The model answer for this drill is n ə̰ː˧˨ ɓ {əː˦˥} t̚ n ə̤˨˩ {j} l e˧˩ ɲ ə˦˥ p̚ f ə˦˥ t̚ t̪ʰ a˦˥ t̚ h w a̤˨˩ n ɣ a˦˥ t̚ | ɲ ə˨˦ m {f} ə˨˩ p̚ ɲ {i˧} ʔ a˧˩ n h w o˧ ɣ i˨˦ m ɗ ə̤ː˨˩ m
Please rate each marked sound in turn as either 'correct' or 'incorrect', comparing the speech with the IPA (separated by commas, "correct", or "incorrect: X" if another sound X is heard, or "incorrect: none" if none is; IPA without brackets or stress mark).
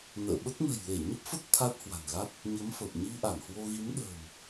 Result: incorrect: ə˦˥, correct, correct, correct